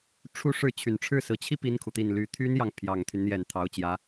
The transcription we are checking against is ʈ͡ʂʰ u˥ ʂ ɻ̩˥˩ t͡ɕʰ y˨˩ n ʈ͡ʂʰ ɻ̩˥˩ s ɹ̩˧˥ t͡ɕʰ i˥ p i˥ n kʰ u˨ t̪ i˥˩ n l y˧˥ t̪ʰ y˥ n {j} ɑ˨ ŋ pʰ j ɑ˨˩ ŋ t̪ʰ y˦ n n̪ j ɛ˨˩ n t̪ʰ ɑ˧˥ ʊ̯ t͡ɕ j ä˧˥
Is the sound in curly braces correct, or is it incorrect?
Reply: correct